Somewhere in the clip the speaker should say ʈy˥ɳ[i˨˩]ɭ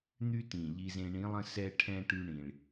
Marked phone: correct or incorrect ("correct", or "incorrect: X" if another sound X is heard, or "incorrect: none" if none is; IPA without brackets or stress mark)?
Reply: incorrect: ĩ˨˩